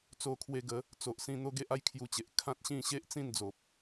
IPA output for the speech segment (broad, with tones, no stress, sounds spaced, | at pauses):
t͡s o˧ kʰ w e˧ ɡ ə˨˦ | t͡s o˨ ʔ s ĩ˧ n̪ o˦ ɡ e˦ ʔ a˦ j kʰ j u˧ t͡ɕ e˨ ʔ kʰ ã˦ t̚ ɕ ĩ˥˧ ɕ e˦ ʔ t͡s ĩ˥˧ n d͡z o˨ p̚